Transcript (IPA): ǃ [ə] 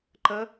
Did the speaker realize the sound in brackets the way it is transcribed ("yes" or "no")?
yes